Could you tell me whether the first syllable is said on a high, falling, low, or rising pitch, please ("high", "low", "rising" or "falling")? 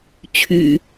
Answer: low